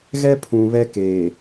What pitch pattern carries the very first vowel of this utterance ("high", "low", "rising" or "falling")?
high